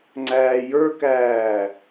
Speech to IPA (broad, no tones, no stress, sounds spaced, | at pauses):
ŋ͡ǀ æː j ə˞ k æː